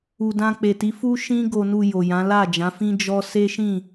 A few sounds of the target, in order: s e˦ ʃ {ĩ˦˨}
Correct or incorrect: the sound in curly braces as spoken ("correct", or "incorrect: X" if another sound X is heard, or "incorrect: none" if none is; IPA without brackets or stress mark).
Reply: correct